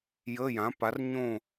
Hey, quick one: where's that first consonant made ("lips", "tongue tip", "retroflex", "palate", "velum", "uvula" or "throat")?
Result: palate